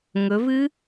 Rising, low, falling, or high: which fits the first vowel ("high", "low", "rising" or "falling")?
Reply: rising